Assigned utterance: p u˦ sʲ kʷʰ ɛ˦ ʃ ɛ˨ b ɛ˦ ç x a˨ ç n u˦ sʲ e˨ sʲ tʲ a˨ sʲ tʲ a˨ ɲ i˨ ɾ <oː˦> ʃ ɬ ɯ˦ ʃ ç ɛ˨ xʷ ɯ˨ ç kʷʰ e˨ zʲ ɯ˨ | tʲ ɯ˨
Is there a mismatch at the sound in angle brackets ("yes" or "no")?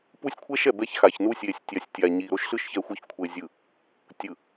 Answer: yes